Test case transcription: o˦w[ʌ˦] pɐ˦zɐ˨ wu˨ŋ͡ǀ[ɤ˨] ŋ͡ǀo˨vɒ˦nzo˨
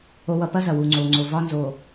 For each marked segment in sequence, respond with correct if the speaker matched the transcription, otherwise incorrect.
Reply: correct, incorrect: o˨

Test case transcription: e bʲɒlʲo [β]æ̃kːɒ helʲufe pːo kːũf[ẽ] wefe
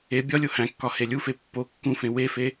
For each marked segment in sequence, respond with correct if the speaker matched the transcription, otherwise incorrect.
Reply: incorrect: h, correct

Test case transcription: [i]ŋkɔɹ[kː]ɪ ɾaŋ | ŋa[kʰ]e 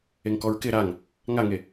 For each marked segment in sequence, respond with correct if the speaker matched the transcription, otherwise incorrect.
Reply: incorrect: e, incorrect: k, incorrect: ŋ

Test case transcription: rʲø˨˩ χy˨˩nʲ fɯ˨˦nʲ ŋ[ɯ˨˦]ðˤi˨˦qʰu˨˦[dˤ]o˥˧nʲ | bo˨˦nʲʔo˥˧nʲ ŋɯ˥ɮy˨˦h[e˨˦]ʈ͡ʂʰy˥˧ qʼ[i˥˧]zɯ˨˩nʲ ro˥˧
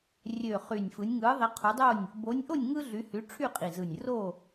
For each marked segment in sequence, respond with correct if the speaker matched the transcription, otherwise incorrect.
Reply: correct, correct, incorrect: y˨˦, incorrect: i˨˩

